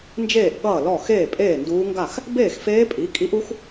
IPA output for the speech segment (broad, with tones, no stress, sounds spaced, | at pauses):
n d͡ʒ eː˥˩ ʔ ɠ ʌː˥˩ l ɔ˥˩ x eː˥˩ pʼ eː˥˩ n d uː˧˥ ŋ ɡ a˥˩ x | b eː˥˩ x f eː˧˥ pʼ i˩˥ kʼ i˧˥ ʔ u˧˥ x